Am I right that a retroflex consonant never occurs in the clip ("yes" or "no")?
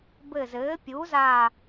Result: yes